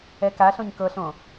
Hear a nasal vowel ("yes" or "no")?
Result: yes